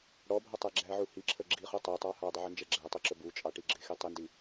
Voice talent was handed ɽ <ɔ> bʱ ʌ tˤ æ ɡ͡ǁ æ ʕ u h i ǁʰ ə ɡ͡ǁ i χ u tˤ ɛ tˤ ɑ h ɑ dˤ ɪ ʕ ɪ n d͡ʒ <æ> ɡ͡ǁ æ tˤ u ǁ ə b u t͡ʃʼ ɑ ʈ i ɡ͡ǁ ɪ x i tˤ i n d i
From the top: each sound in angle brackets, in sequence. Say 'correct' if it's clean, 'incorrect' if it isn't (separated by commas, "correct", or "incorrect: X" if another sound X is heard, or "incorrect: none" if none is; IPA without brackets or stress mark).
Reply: correct, incorrect: ɛ